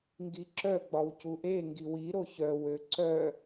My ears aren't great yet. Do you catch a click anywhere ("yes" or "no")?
yes